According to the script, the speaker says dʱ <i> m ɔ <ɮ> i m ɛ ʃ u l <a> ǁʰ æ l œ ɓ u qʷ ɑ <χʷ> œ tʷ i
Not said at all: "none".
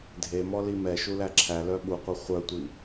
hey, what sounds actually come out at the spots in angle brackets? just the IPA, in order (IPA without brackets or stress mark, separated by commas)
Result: e, l, æ, χʷ